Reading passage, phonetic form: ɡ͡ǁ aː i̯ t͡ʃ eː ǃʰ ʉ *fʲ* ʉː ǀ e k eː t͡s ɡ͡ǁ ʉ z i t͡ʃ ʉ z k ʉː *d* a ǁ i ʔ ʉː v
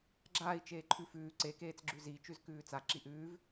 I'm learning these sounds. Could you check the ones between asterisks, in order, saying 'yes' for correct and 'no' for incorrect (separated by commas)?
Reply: no, no